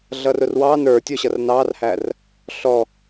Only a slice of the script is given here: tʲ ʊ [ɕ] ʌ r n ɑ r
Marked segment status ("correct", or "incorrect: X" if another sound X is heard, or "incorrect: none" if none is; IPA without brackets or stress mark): correct